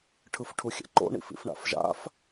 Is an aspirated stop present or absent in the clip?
present